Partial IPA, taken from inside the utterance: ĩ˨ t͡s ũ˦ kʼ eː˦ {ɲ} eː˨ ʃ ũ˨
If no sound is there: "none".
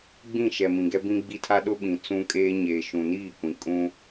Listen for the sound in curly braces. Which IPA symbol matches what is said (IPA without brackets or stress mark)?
ɲ